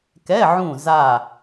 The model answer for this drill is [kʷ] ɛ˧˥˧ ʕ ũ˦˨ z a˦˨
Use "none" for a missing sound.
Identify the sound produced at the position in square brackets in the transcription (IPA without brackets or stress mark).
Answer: k